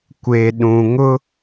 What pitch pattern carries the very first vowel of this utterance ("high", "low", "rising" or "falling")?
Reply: low